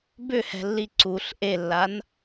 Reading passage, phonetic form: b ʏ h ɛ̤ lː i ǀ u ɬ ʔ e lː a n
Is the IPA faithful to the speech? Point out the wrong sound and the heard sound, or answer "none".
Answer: none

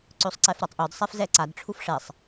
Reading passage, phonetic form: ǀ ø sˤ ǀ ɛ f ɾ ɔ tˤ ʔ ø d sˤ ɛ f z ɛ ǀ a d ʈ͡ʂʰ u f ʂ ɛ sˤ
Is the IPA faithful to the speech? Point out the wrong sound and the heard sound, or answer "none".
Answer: none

